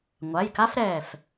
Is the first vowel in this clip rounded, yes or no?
no